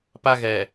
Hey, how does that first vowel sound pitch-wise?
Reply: high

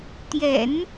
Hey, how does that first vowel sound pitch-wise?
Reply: low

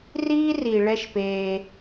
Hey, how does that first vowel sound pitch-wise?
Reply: high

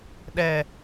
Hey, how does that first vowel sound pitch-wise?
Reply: low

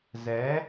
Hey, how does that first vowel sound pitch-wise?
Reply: rising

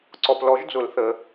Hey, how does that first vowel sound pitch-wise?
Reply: low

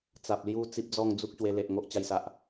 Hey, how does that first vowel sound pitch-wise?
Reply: low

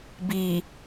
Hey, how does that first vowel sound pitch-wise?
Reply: low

